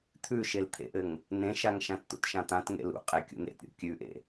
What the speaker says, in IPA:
t̪ʰʉʃelt̪ʰḛʔɘŋ | nẽʃaŋ ʃãtt̪ṵtʃãt̪ãt ŋḛlṵqʼe kʲṵn̪ḛt ɾʲṵkʲʉʔḛ

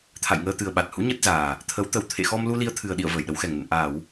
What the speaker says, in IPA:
t̪ʰa̰˧˨jŋəː˧ t̪ɨ˨˩ə̯ɓa˨˩t̚hṵ˧˥ ɲə˦˥t̚zaː˨˩ | t̪ʰə˨˦w t̪ə˨˩w t̪ʰḛ˧˨xɔ˧mlu˧ li˧ə̯t̪ʰɨ˨˩ə̯ɗḭ˧˨ə̯ vəː˧˩jɗə˨˦wxɛ˨˩ŋnə̰˧˨n ʔaː˧˩˨w

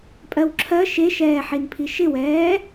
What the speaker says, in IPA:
pʼɜwǁʰɜ ʃeʃɛːħinpʰi ʃɪwɛː

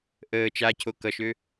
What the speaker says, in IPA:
ʔəː t͡ʃacʰo kʌʃø

